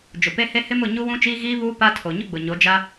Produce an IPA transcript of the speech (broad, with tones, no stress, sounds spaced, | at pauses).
d͡ʒ ʊ˨ p e˦ h e˦ h ɪ˦ m ʊ˦˨ ɲ u˦ w ũ˦ t͡ʃ iː˦ ɣ iː˦ β uː˦ p a˦ tʰ o˨ ɲ ʊ˦ ɡ͡b ʊ˨ ɲ o˨˦ d͡ʒ a˦